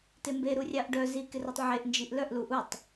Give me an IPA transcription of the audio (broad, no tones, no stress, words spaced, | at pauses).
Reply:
tembe ɾurʲɑʔɖœ zikɪrutˤ ʕeʔnd͡ʒiʔ lœʔlu ʔutˤ